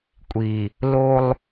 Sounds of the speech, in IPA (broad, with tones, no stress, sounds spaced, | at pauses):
kʷʼ i˨ | l o˦ lˠ